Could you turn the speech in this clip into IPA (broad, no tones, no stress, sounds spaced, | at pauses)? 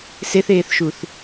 s e θ eː θ ʃ u θ